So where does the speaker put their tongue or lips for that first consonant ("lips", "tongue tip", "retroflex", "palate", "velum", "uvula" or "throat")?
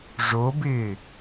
retroflex